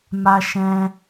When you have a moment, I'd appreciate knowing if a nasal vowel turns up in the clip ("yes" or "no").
yes